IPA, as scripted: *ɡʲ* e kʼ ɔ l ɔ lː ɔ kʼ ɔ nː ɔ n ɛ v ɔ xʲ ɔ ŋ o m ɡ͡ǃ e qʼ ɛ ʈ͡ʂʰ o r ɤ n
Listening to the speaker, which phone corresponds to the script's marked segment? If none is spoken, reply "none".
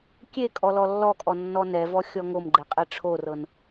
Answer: kʲ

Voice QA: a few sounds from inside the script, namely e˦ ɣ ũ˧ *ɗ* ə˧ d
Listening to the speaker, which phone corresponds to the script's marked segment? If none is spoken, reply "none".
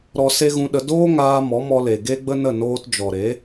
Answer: ɗ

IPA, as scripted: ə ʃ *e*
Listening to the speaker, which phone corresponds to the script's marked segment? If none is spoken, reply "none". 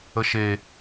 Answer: e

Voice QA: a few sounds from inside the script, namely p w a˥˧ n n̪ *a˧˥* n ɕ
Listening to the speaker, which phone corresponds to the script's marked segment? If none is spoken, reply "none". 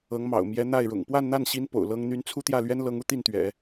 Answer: a˥˩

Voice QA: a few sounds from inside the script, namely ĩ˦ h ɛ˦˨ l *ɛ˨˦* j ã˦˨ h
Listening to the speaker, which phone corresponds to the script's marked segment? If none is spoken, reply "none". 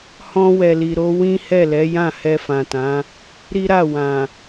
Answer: ɛ˨˦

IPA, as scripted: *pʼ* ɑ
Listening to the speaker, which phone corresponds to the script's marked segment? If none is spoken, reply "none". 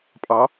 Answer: pʼ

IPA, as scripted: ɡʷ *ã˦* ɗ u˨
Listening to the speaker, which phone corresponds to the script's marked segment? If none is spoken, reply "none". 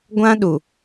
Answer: ã˦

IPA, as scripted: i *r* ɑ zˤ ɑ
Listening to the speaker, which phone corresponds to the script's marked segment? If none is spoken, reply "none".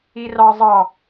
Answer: r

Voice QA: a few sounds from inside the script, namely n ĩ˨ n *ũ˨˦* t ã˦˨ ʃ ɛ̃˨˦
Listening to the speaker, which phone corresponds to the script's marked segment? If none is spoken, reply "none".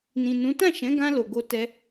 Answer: ũ˨˦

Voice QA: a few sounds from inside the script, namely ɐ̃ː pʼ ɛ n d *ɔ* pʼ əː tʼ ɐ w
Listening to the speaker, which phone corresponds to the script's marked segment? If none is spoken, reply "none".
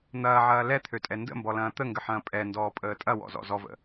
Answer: ɔː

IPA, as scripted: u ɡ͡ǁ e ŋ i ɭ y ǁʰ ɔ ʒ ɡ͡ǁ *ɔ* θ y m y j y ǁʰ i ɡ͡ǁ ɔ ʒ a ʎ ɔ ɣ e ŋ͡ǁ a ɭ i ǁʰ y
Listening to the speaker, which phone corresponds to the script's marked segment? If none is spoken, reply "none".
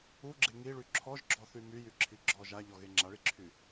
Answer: ɔ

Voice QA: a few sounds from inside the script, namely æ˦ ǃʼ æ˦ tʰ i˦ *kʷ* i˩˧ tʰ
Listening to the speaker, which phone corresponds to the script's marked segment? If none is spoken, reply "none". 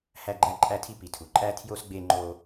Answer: p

